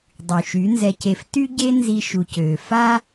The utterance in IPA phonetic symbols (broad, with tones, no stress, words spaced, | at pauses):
dˤy˨ʃy˨˦nzɛ˧ce˧f ty˦ɟe˦ nzi˧ ʃu˨cøː˨ fa˦